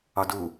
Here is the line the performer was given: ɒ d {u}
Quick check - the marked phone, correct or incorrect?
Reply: correct